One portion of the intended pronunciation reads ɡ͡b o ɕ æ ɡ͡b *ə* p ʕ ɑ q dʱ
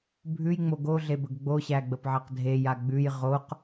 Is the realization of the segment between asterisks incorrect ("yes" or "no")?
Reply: no